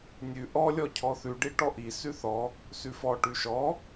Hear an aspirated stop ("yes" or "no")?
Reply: yes